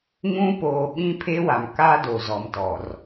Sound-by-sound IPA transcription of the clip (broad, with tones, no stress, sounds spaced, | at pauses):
ŋ ũ˦ p oː˨ ɓ ĩ˦ pʰ e˦ w a˨ m k aː˦ d o˨ z ɔ˨ m t ɔ˨ r